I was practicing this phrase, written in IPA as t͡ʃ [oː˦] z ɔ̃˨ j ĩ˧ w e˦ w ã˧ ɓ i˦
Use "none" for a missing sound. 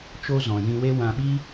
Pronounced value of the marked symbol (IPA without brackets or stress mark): o˦